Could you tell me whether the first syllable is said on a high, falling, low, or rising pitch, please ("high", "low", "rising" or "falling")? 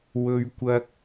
high